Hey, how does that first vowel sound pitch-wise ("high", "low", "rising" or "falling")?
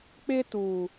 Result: high